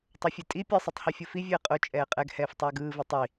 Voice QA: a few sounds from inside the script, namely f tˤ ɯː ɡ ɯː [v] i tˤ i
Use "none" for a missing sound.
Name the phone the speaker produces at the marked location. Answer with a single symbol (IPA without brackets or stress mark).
v